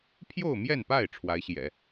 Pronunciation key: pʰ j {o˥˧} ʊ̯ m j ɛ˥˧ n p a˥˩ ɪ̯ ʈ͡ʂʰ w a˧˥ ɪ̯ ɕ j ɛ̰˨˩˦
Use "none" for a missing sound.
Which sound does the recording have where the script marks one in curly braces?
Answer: o˥˧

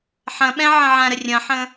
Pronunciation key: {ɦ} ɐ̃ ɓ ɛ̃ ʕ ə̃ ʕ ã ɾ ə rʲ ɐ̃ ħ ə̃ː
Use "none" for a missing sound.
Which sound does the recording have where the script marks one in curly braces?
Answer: ħ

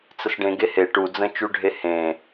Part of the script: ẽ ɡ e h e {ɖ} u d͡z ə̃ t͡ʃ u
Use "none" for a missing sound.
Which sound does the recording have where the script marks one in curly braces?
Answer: ʈ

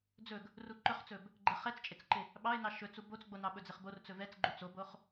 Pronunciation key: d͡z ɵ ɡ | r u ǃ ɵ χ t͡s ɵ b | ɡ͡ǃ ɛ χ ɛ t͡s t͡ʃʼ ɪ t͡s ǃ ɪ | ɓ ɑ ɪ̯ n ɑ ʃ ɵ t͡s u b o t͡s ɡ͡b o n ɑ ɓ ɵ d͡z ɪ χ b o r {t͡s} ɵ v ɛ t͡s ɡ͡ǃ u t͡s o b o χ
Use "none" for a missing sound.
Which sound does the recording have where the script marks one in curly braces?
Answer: t͡s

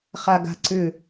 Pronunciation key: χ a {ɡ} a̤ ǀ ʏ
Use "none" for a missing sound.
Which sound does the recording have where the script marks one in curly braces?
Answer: ɡ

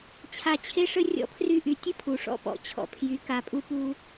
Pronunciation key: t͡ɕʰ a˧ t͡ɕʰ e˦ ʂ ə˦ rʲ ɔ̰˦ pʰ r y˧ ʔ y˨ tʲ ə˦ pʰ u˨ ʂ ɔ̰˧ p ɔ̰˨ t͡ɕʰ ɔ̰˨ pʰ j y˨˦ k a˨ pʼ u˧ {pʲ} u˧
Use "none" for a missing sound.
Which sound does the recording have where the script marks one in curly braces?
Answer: p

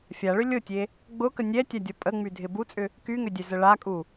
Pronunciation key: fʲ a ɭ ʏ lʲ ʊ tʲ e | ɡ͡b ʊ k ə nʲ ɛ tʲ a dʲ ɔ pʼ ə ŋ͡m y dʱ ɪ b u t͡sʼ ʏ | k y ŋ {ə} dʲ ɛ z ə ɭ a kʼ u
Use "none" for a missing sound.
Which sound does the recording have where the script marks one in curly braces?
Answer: ʏ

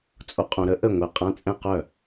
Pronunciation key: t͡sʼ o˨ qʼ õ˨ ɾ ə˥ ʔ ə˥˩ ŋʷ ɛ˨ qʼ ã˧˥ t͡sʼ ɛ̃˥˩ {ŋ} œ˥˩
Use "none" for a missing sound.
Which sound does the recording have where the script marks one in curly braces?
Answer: q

